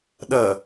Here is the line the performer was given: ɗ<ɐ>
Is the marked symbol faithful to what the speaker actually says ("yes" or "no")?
yes